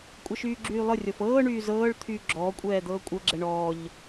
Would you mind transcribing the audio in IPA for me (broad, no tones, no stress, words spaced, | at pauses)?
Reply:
kʷʼɛʃyːɡ͡ǁyːlˠɤ rʲɔfɤː ɳyːzɤːɭ t̪ʰyːɡ͡ǁɔː kʷʼɛːd̪ɤːkʷʼɤ ɡ͡ǁɛɳɔːʎ